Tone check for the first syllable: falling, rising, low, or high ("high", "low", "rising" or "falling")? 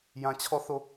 low